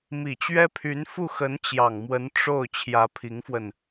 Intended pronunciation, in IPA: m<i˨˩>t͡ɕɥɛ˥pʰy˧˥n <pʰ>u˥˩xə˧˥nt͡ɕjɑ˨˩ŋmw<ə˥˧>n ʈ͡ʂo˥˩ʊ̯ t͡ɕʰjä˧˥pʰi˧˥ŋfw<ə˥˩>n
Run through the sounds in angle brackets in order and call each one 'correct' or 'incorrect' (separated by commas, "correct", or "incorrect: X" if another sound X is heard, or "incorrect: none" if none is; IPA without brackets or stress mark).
correct, incorrect: f, incorrect: ə˧˥, incorrect: ə˧